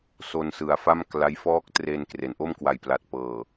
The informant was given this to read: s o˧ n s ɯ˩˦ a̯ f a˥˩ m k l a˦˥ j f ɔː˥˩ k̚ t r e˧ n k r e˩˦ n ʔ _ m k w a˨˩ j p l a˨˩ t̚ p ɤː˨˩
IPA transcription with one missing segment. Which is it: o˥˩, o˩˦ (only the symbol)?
o˥˩